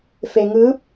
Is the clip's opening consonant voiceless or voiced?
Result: voiceless